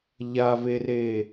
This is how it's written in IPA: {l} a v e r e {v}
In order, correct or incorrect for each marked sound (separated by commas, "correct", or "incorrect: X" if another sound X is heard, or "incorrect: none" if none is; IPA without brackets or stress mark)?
incorrect: ʎ, incorrect: none